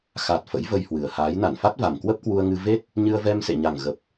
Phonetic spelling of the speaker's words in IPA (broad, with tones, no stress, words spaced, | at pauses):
xa˨˩t̚ fə̰˧˥jvə˧jhwɨ˨˩ə̯haː˨˦j na˧˩nfa˦˥t̚ va˨˩mkwə˦˥p̚kwu˧ə̯ŋɨ˧ ve˦˥t̚ | ɲɨ˧ə̯vɛ˧msḛ˧˨ɲa˨˩ŋ ɣə˨˩p̚